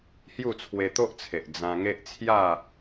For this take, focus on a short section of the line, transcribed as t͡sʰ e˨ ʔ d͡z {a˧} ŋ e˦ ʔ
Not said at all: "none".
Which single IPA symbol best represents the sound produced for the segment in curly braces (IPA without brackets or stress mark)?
ã˧